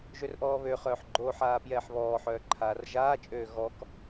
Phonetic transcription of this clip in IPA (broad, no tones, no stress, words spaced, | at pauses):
ʒørʔɔːβøχœːħ ɡ͡ǃoħaː pjɛːħβɔːħœː ǃʰaːrʒaːt͡ʃʼøː ɣɔk